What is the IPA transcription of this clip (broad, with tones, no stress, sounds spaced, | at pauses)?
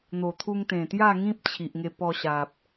n̪ o˨˩ t̪ʰ u˧ ŋ t̪ ẽ˨˩ t̪ j a˥˧ ŋ ĩ˦ p̚ t͡ɕʰ i˨ ʔ ŋ e˧ p ɔ˧ ɕ a˨ p̚